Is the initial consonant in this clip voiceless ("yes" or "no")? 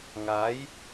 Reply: no